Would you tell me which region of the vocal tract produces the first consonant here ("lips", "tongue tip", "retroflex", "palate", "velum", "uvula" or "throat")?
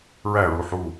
tongue tip